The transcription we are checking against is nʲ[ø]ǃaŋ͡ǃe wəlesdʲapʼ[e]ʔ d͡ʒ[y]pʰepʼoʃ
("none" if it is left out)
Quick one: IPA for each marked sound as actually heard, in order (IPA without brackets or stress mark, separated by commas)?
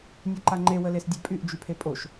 ø, y, y